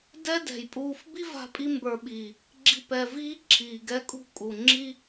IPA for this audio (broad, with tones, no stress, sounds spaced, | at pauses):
d ɛ˦ d ɛ̤˨ j pʼ uː˧ f b i˦ v a̤˧ pʼ i˧ m b ə˞˨ ɓ iː˨ | ɡ͡ǁ i˧ p ɛ˨ v iː˦ ǁʰ iː˨ ɡ ɛ˦ kʼ ṳ˦ kʼ u˨ ŋ͡ǁ i˦